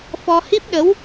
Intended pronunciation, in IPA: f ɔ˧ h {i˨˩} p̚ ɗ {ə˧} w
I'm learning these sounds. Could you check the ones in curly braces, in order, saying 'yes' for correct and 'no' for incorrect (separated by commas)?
no, no